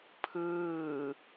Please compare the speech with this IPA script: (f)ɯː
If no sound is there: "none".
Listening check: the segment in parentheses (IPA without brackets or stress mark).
pʰ